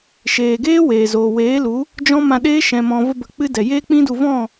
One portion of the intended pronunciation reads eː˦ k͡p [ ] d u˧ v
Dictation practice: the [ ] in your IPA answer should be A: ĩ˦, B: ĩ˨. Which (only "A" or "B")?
A